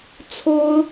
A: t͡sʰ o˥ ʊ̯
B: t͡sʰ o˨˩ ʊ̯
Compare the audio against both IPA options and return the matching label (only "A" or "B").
A